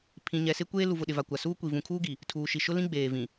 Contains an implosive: yes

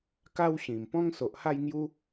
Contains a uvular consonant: no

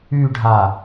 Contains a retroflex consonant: yes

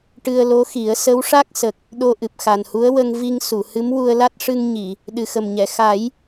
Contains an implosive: yes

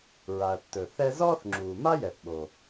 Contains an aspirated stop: no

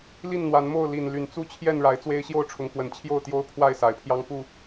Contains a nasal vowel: no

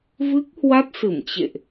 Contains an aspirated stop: no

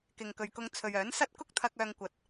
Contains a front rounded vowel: yes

